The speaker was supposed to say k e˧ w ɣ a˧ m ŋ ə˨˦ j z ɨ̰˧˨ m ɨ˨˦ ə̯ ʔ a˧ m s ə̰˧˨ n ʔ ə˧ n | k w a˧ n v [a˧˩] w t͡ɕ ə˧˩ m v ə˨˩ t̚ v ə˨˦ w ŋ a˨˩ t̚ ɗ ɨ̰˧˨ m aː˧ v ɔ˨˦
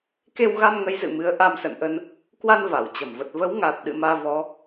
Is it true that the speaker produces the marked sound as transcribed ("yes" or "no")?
yes